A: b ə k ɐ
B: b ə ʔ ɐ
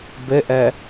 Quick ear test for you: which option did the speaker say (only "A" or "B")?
B